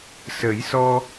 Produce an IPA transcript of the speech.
s ə˨˩˦ j s ɔ˧

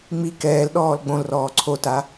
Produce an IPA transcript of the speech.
ŋ͡m i k ɛː l ɗ ɔː l ɡ͡b õ l r ɔː ǀʰ o t a

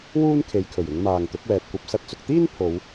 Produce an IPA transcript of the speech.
w uː˥ n kʰ e˨˧ j kʰ ɵ˨˩ ɥ ɪ˨˧ ŋ m aː˨ ŋ t̪ ʊ˨˥ k̚ w ɛː˨ t̚ kʷ ɐ˨ p̚ s ɐ˧ t̚ t͡s ʊ˨ k̚ t̪ iː˥ n pʰ o˨˧ w

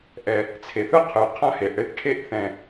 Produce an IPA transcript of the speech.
ʔ ɛ˨ | t͡sʰ e˨ θ ɯ˦ qʰ ɯ˨ qʰ ã˦ h e˨ ʔ ɽ e˦ θ ʈʰ e˦˨ ʔ θ ɛ̃˨

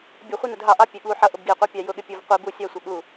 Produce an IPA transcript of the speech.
bʲ ʊ χʷ i n ʊ d ɦ ɑ ʔ ɑ pʲ ɛ ɠ u ħ ʌ ʔ ʊ b ɡ i qʷ ɑ pʲ ɑ j ʊ ɠ ɪ pʲ u v qʷ i b u sʲ ɑ sʷ ʌ ɠ u

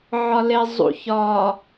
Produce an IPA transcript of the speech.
ʕ ɒ l e zˤ ṵ ç ɒ

